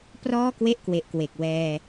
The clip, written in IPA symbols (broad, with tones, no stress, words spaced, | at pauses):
prɔː˥˩kwe˥˩ʔkwe˨˩ʔkwe˨˩k̚ wɛː˧